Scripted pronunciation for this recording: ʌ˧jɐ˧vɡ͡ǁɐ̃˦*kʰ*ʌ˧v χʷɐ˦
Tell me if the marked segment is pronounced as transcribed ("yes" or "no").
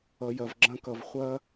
no